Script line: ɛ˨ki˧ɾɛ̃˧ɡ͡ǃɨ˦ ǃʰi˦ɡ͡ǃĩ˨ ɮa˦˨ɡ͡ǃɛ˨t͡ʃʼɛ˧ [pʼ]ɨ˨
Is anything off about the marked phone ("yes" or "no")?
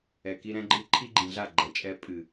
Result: no